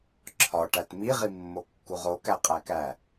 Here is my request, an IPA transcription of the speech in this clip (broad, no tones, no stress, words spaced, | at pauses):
ǁʰɒʈæt miʁimːokːuʁ okæqʼækæ